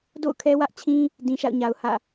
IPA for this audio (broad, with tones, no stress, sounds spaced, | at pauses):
d o̰˦˨ ʊ̯ kʰ ɛ˦ w ä˦ ʔ t͡ɕʰ ĩ˦ | d ĩ˨ ʃ a̰˦˨ ʊ̯ ɲ a˨ ʊ̯ h ä̰˦˨